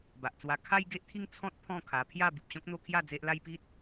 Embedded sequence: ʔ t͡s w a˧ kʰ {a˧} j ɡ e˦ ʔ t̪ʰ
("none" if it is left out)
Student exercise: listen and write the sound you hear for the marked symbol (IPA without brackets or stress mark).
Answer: a˦